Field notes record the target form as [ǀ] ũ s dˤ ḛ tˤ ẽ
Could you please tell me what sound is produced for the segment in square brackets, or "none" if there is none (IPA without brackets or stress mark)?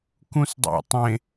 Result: k